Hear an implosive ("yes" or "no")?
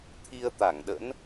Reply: yes